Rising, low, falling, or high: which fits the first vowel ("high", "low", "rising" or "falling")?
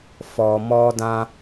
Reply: low